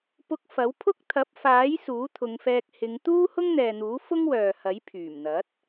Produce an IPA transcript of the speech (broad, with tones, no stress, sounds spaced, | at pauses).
p ʊ˧ k̚ f ɐ˨˥ w pʰ ʊ˥ k̚ t̪ʰ ɐ˨˥ p̚ f aː˨˥ j s uː˨˥ t̪ʰ ʊ˨˧ ŋ f ɛː˧ k̚ h ɪ˨˧ ŋ t̪ uː˥ h ʊ˥ ŋ n̪ ɛː˨ n̪ uː˨˥ f ʊ˥ ŋ w œː˨ h ɐ˨˥ j pʰ yː˨˩ m n̪ ɐ˨˥ t̚